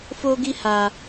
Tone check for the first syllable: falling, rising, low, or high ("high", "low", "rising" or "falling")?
high